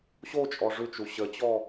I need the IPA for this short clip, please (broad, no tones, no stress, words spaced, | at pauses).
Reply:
ɕot͡ʃʼɔ ʐʉt͡ʃu ɕət͡ɕɔ